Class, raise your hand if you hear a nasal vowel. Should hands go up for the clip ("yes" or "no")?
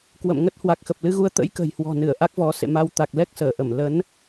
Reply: no